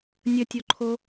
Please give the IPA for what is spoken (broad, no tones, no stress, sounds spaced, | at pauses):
nʲ ə tʲ o ǃʰ o